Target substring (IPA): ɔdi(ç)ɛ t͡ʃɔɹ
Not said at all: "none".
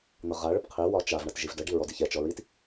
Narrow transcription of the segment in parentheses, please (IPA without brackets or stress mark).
ç